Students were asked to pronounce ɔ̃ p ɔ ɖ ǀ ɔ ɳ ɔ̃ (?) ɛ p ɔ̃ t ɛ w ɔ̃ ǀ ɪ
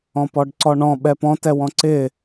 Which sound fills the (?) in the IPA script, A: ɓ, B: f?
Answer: A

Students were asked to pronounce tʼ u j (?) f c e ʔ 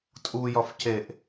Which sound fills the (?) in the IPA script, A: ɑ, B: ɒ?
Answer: B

